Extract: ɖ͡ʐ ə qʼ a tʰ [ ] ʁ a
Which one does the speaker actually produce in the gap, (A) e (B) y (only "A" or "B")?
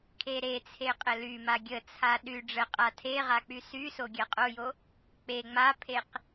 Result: A